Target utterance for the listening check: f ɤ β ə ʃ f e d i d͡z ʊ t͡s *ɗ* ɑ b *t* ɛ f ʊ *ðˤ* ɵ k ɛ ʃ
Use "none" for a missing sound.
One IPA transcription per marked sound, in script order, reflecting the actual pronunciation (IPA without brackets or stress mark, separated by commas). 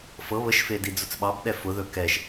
ɓ, ɗ, ð